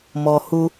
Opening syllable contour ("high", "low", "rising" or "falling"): low